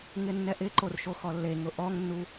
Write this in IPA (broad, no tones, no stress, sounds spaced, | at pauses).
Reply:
ŋ ɪ nː ɛ ʔ ɪ ǃ o r ʃ o x ɔ lː e ŋ ʊ ʔ ɔ ŋ nː u